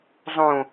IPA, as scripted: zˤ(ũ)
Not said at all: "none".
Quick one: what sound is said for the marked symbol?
ũ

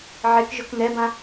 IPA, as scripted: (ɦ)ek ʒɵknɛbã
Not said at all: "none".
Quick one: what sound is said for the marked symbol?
ʕ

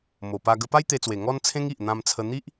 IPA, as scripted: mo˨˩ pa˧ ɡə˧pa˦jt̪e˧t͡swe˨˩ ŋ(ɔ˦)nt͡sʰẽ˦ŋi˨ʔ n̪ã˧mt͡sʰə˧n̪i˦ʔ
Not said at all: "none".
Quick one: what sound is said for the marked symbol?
ɔ˦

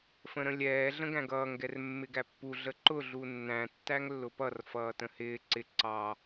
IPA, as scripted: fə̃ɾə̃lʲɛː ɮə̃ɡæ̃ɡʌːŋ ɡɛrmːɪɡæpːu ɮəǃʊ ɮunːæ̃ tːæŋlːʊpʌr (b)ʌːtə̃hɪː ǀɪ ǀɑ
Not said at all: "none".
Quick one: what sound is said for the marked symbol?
f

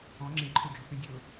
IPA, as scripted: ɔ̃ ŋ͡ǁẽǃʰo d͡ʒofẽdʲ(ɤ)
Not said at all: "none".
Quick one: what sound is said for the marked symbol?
ɤ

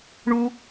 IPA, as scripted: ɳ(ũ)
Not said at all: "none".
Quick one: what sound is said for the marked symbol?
u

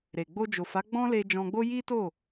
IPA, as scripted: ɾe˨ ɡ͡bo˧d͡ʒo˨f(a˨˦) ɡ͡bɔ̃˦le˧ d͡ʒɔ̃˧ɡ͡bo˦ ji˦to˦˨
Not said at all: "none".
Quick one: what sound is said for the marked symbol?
a˨˦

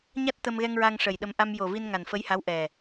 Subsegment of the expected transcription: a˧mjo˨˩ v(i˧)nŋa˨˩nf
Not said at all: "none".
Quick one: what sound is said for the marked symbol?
i˧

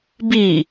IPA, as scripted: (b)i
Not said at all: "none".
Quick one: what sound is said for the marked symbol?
b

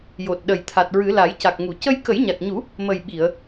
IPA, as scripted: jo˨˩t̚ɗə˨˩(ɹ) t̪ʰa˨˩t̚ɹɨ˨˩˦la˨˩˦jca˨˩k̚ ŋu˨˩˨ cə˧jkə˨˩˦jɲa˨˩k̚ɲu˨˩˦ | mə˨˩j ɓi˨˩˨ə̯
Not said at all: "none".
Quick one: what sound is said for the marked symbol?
j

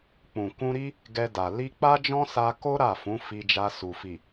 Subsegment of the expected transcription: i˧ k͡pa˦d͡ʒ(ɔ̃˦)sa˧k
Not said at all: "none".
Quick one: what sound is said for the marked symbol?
ɔ̃˦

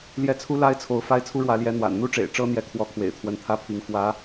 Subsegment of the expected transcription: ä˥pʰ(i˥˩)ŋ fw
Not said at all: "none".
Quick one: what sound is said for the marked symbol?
i˧˥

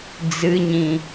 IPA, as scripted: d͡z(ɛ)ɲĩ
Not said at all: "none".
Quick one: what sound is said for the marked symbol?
ɨ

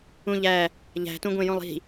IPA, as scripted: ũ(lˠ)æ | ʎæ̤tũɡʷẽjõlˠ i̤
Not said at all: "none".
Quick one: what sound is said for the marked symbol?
ʎ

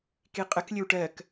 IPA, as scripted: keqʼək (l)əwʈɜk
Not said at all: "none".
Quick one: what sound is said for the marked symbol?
lʲ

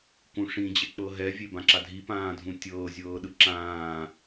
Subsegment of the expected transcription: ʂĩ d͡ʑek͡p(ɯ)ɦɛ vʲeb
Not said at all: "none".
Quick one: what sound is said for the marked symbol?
ɤ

